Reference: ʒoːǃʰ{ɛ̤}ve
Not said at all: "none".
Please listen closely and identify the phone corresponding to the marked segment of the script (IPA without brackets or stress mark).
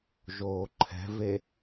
ɛ̤